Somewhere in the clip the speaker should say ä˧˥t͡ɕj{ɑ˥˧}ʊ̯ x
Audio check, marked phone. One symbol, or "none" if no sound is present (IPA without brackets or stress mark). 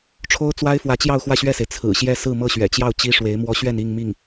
ɑ˥˧